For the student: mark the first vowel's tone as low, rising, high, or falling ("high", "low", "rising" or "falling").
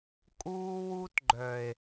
high